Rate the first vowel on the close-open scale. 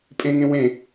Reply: mid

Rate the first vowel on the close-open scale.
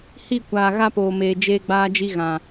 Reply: close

